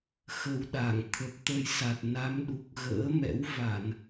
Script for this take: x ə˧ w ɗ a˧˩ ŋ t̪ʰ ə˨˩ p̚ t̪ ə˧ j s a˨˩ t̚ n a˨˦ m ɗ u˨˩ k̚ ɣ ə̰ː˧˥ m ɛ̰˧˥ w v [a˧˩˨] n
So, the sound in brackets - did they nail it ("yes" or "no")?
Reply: yes